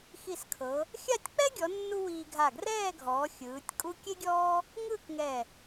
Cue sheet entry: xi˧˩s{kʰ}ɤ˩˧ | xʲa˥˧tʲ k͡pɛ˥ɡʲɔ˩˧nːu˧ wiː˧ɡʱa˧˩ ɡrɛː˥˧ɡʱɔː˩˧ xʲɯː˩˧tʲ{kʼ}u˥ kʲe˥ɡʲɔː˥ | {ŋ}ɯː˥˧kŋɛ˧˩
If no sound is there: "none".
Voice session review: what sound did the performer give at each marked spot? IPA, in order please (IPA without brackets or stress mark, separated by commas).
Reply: kʰ, kʼ, ŋ